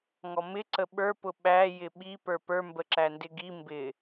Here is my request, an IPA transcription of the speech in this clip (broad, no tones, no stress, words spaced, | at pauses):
ŋɔmɪ ǀəɓə˞ pʊɓæ jɪɓi pə˞pə˞ mbəǁændɪɡi mbɪ